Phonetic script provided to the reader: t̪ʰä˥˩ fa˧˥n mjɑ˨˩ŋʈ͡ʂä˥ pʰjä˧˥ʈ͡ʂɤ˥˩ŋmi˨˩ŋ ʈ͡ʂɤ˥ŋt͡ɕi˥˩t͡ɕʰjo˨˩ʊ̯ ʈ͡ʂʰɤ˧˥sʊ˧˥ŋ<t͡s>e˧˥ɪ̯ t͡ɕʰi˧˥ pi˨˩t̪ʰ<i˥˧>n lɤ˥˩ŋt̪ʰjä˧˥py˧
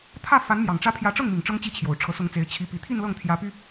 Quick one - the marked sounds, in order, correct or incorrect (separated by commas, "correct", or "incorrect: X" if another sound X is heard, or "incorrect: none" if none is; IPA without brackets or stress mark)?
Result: correct, correct